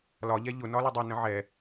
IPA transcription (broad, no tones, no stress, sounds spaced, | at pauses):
l ɒ ʎ ɛ ʎ ʊ n ɒ l u dˤ i n ə̃ ʕ ɛ